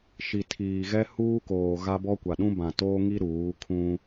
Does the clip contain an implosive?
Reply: yes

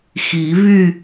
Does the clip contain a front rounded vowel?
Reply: yes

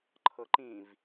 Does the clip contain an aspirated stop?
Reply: yes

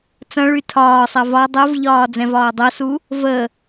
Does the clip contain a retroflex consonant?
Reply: yes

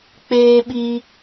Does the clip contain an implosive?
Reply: yes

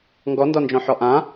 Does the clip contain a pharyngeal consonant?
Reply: yes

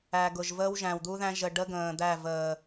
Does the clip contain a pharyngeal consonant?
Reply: no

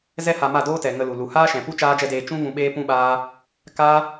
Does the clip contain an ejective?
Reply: no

